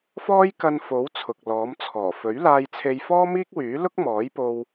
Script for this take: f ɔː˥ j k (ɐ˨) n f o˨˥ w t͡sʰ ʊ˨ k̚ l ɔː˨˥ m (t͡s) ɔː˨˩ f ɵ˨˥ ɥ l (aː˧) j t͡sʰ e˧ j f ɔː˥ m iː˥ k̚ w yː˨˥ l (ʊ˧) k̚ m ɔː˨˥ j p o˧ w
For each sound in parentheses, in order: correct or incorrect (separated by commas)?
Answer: incorrect, incorrect, correct, incorrect